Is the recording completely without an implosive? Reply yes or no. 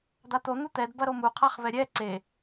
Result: yes